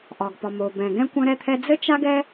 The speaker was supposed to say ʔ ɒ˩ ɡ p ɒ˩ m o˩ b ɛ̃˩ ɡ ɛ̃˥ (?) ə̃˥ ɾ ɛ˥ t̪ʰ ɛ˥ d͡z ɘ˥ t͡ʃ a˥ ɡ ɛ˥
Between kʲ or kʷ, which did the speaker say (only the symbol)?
kʷ